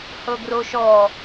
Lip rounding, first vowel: unrounded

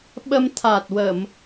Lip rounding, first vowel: unrounded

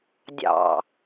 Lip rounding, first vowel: unrounded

